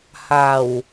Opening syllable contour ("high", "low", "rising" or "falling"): low